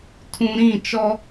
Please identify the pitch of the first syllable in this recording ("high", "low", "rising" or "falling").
low